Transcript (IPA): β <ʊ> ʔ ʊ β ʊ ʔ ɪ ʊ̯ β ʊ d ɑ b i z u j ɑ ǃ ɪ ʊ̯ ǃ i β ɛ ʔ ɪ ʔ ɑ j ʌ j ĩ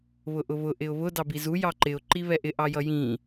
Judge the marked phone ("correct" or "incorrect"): correct